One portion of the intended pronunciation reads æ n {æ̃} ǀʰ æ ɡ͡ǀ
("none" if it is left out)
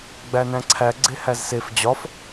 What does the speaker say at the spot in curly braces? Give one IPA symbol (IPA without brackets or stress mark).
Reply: æ̃